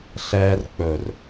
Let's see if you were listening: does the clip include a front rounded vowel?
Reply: no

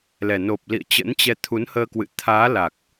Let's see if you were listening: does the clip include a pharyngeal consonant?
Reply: no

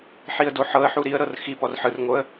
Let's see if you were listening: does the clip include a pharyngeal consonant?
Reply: yes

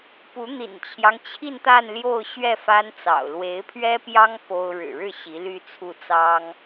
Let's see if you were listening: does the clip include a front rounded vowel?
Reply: yes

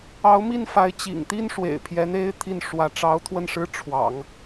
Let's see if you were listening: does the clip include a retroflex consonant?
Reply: yes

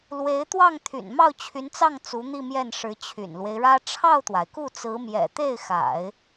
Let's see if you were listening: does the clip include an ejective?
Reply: no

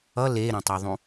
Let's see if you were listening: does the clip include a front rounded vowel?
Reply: no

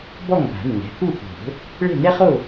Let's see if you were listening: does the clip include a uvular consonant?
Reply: yes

